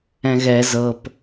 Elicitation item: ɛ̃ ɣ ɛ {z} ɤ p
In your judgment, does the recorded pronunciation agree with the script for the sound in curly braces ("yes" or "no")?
yes